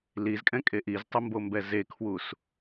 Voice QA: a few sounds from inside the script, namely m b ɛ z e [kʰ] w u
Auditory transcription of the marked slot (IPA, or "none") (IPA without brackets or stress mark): kʰ